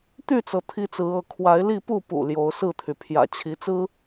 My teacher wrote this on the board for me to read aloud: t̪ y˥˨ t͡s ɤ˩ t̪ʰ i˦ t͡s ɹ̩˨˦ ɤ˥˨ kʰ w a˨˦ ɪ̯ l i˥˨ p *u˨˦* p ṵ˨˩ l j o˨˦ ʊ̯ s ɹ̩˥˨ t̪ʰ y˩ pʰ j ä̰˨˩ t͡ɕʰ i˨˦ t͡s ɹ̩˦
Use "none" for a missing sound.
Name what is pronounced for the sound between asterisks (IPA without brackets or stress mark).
u˥˨